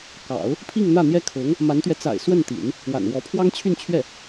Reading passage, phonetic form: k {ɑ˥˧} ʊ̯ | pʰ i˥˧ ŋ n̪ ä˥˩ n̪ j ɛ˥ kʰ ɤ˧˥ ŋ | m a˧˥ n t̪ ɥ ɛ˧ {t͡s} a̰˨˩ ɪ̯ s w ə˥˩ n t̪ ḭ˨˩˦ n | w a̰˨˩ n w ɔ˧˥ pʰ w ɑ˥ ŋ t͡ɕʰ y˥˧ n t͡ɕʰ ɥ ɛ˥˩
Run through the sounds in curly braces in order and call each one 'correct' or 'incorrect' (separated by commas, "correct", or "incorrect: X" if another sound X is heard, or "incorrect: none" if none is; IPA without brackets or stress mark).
incorrect: ɑ̰˨˩˦, correct